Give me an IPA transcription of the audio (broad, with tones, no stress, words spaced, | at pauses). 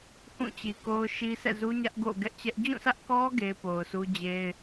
hũ˦˨t͡ɕi˨ko˦ʊ̯ ʃi˦ sɛ̰˦˨zu˦ ɲä˦ʔɡo̰˦˨ɡɛ˦ʔt͡ɕɛ˦ʔ d͡ʑũ˦˨sä˦ʔkɔ˦ ɡe˦ɪ̯po˨ʊ̯ su˦d͡ʑe˦ɪ̯